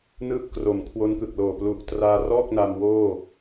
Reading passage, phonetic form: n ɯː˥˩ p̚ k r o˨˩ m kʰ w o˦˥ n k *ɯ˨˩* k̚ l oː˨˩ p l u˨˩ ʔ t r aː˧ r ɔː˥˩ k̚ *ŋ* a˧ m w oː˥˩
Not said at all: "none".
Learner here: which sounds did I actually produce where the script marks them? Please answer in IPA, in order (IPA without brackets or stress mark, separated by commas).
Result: ɯ˨˩, n